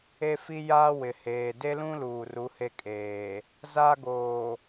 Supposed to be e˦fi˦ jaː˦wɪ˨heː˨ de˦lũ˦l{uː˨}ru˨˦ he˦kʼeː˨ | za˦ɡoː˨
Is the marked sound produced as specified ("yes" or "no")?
yes